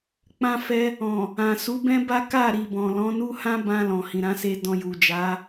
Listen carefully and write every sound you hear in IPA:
k͡p ã˧ f ɛ˧ | ɔ̃˨ | ã˨ s u˨˦ b ɛ̃˦ b a˦ k a˦˨ ɾ i˨ b ɔ̃˨ l ɔ̃˨˦ n u˦ h ã˦ b ã˧ l ɔ̃˨ h ĩ˨ ɾ ã˨˦ s e˧ d ɔ̃˧ j u˨ d͡ʒ a˨˦

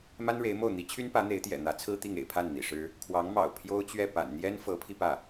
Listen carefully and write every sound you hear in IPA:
m a˥ n ɻ e˧˥ ɪ̯ m o˥˩ ʊ̯ n̪ i˧˥ t͡ɕʰ y˥ n p ä˧˥ n̪ e˧˥ ɪ̯ t̪ j ɛ̰˨˩ n̪ ä˧˥ t͡sʰ ɹ̩˥ t̪ i˥˩ ŋ ḛ˨˩ ɪ̯ pʰ a˥˩ n n̪ ḭ˨˩ ʂ ɻ̩˥ | kʰ w ɑ˧˥ ŋ m ɑ̰˨˩ ʊ̯ pʰ j o˥ ʊ̯ t͡ɕ ɥ ɛ˥˩ p a̰˨˩ n n̪ j ɛ˥ n f ɤ˧˥ pʰ i˧ p ä˥˩

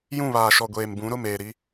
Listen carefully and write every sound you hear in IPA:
j ũ˦˨ β aː˨ ʃ ɔ˨ ɡʷ eː˨ m b ũ˨˦ ɾ ʊ˦˨ m eː˨ ɾ i˦

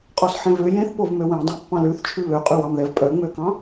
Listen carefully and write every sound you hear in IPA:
qʼ ɔ s ħ ẽ v ø j ẽ θ p o v m ø w ẽ dˤ ɑ̃ pː ɑ̃ l ʉ θ t͡ʃʰ ʉ β ø qʼ ʉ w ɑ m ð ɛ v pʼ œ ŋ͡m ø k ɑ̃

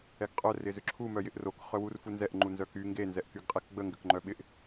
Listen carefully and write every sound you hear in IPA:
ɛ ɡ qʼ œ r ɪ z ʏ ǁʰ u m œ j ɪ ʔ r o k χ œ w u r f u n z ɛ ʔ ŋ͡ǃ u n z œ k y ŋ ɡ e n z ɛ ʔ k y ɡ qʼ ɛ k ɡ͡b ə ŋ ɡ ʏ k ŋ͡ǃ œ ɓ ɪ ʔ

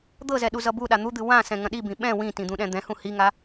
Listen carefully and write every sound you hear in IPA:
d̪ ɤ z ɛ ɗ u z ʌ b u ɗ a n̪ u d̪ ɨ w ã s ɛ̃ ŋ ɐ̃ ɗ i b ĩ ɓ ɛ̃ w ĩ t ĩ d̪ ũ ɗ ɛ̃ d̪ ɛ̃ h ũ h i ŋ a

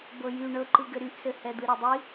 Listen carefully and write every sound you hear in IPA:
b ɤ j y ɳ ɤ ǃ ɯ ɡ ɘ ɾ y ʔ s ɘ h ɛ d̪ ɯ ɾ ɛ dˤ i

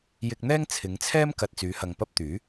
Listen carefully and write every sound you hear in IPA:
j ɪ˧ k̚ n̪ ɛː˥ ŋ t͡sʰ ɪ˨˧ ŋ t͡sʰ ɛː˥ m k ɐ˨ t̚ t͡s yː˨˧ h ɐ˨ ŋ p ɐ˥ p̚ t̪ yː˨˥

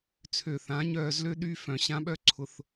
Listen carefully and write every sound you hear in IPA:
t͡sʰ ø˨ θ ã˨˦ ɲ œː˧ z l ø˦ ɗ y˧ f œ̃˨ ɕ ã˧ ɓ œ˦ ǀʰ ʊ˧ θ

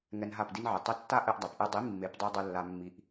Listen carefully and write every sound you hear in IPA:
ŋ ɛ˧ n ɦ a˦˨ p d i˦ n ʕ ɨ˨ tˤ ɨ˧ tː a˦ ʔ ɘ˧ ʔ dˤ a˨ p ʔ ɨ˧ dˤ i˨˦ mː e˨˦ p dˤ i˧ dˤ ɘ˧ lː a˧ mː i˧ ʔ

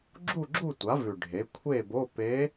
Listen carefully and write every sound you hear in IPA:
ɡ͡ǁ u˥˨ ɡ͡ǁ u˥˨ tʷ a˩˥ v ʉ˨˩ ɖʱ e˩˥ kʷʰ e˥˨ b o˧˥˧ p e˧˥

